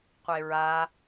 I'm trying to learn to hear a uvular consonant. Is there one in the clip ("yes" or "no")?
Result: yes